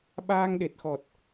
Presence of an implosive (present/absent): present